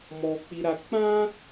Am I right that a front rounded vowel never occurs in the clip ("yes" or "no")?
yes